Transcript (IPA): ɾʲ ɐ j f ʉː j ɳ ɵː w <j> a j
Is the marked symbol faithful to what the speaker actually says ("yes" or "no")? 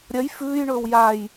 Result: yes